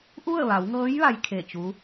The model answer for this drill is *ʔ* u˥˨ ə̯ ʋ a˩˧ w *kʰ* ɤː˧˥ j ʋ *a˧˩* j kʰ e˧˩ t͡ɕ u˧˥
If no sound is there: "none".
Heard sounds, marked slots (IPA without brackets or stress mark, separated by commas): ʔ, ŋ, a˧˥